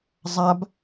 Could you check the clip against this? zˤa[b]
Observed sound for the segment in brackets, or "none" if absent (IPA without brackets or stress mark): b